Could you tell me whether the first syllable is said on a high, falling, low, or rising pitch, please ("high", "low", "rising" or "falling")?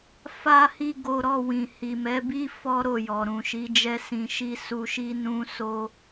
high